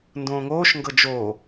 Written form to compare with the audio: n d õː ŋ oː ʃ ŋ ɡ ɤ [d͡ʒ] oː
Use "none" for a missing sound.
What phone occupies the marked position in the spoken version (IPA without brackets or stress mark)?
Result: d͡ʒ